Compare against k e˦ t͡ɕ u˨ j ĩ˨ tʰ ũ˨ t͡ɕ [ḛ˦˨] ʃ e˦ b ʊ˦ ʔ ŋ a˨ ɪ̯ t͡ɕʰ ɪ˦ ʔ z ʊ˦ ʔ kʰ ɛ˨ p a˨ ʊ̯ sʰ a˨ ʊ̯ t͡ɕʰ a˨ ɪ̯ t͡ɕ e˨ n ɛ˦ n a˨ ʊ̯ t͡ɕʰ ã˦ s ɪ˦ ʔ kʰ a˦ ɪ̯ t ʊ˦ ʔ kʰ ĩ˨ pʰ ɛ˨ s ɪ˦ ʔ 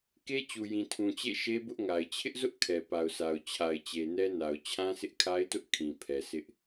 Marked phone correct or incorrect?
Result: correct